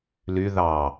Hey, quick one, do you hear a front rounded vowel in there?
yes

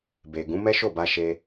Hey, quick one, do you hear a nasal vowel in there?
yes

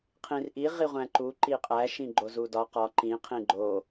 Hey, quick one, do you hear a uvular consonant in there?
yes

